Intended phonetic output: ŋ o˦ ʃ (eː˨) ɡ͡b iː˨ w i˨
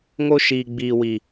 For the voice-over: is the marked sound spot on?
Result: no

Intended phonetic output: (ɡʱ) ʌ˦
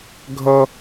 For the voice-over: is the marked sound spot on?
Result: yes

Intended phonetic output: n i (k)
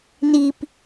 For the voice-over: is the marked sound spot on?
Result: no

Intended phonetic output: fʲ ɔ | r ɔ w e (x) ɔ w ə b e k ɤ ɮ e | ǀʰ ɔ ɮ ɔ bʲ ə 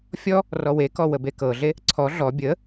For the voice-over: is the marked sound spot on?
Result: no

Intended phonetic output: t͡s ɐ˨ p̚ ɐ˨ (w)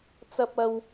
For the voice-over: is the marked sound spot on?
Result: yes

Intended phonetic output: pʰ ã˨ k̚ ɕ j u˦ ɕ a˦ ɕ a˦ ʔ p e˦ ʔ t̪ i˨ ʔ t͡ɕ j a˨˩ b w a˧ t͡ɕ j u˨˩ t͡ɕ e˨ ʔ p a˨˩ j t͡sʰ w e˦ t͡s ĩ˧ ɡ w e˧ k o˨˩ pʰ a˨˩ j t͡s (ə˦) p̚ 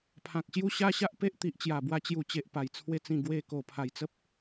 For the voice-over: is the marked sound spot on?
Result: yes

